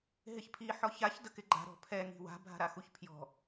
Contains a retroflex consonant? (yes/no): no